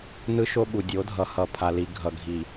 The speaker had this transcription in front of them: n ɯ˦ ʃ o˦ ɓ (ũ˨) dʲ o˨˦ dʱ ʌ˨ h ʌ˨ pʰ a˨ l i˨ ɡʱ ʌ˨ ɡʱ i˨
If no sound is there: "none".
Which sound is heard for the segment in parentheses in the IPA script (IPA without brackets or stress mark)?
u˨